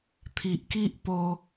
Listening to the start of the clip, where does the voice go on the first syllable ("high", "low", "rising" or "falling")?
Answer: low